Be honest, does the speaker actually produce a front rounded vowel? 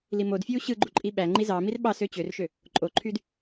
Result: yes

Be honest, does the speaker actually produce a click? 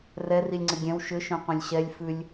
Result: yes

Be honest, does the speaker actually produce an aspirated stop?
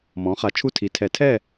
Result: yes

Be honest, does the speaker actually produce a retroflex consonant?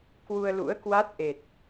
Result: no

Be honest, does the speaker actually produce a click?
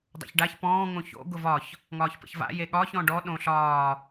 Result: no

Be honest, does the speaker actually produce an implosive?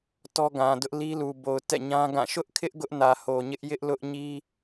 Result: no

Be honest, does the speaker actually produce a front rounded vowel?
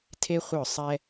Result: yes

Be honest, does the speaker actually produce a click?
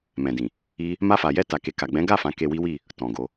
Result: no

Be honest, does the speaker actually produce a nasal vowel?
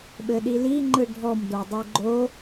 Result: no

